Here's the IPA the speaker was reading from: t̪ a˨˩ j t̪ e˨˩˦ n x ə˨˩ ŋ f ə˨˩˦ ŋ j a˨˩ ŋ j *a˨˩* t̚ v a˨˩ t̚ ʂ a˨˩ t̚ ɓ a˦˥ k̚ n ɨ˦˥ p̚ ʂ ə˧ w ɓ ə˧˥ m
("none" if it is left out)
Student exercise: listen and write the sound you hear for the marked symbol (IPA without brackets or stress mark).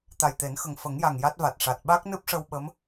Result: a˦˥